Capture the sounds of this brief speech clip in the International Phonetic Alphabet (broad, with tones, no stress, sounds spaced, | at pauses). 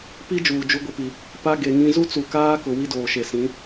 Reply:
p i˦ d͡ʒ uː˨ d͡ʒ u˦ ɡʷ ɪ˦ p i˨ | p a˦ ɡ e˨ ŋ ĩ˦ z u˦ t͡s u˨ k aː˦ k ʊ˨ w i˦ d oː˨ ʃ e˨ s ĩ˨˦